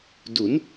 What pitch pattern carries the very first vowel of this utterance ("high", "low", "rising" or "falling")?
rising